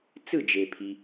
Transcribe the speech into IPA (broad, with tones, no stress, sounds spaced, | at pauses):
t͡s ɯ˥˨ d͡ʒ e˨ pʰ i˨